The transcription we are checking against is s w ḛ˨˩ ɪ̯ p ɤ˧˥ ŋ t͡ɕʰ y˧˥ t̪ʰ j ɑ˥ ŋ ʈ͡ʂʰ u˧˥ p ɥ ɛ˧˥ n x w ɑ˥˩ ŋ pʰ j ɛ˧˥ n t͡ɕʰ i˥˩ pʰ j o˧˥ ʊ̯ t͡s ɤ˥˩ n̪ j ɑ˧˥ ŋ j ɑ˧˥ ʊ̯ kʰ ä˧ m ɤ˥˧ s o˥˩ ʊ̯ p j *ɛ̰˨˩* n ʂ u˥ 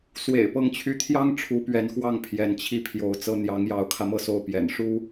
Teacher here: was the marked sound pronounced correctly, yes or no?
yes